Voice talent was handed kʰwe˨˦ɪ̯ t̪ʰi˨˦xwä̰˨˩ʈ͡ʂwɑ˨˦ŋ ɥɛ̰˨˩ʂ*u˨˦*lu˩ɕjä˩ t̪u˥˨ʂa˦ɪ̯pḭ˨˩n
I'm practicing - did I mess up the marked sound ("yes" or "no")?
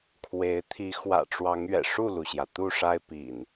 yes